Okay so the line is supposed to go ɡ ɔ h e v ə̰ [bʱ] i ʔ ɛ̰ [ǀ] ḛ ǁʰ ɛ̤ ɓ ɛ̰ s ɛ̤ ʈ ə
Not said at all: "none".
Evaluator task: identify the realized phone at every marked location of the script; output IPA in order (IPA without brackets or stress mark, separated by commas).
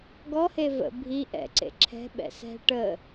bʱ, ǀ